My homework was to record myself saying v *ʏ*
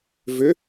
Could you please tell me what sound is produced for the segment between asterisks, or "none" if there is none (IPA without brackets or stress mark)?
ʏ